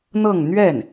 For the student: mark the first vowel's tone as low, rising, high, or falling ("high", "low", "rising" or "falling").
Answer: falling